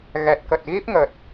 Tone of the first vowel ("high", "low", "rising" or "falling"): low